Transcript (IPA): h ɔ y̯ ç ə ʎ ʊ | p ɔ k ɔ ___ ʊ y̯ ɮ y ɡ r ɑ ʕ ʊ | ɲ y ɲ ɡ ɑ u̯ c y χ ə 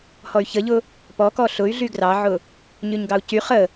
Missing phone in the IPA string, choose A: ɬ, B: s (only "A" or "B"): A